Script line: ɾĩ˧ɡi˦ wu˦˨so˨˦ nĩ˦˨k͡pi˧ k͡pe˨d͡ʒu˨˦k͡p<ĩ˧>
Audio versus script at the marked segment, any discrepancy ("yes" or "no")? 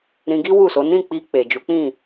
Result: yes